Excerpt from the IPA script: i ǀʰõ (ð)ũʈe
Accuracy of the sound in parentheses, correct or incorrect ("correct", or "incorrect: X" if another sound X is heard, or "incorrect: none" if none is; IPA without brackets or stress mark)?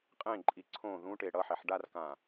correct